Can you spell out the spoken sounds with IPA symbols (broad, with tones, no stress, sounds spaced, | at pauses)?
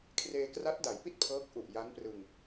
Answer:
kʰ r eː˧ k r a˦˥ t̚ d a˩˦ j p i˥˩ t̚ pʰ ɤː˦˥ k̚ ʔ u˨˩ ʔ j a˦˥ n p r ɯ˧ ŋ